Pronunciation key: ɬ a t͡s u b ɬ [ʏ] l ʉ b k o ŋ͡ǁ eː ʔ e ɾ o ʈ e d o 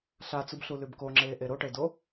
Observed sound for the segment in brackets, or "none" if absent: u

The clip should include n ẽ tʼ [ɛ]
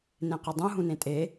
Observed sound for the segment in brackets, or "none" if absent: e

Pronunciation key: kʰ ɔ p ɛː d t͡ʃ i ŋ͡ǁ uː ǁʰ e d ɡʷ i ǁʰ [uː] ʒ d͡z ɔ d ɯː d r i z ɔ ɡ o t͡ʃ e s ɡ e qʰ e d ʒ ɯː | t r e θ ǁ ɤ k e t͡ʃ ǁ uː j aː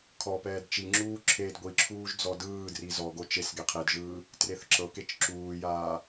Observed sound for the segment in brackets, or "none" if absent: uː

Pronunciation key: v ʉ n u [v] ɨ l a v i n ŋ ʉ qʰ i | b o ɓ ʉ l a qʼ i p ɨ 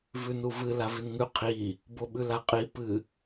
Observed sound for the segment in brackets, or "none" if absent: v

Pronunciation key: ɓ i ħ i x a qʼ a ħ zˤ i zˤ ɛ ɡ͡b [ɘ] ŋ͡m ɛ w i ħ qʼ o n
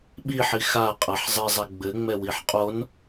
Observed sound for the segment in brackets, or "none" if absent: ɘ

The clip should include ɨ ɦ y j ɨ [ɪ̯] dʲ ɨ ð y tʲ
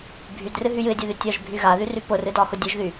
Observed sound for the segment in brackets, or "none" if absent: ɪ̯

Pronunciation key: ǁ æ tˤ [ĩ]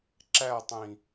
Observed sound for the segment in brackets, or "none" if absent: ĩ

